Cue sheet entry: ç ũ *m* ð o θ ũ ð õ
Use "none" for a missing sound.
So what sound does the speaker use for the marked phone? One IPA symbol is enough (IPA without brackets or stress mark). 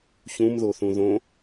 m